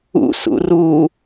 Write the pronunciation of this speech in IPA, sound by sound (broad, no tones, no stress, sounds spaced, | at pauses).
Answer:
ṵ s ṵ r u